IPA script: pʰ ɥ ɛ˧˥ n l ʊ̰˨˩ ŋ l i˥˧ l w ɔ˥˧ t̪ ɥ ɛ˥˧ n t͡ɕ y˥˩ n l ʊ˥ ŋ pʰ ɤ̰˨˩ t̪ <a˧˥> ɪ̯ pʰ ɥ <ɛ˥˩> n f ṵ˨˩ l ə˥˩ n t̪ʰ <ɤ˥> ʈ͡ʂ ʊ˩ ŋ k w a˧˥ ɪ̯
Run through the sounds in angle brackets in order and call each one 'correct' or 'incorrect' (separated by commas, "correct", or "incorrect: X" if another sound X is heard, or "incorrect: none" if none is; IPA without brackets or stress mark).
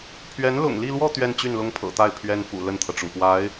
incorrect: a˥˩, incorrect: ɛ˥, incorrect: ɤ˩